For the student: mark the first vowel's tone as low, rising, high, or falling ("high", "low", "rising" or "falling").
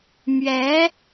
rising